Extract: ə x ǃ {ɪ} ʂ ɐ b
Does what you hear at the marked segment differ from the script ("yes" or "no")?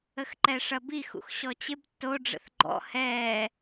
yes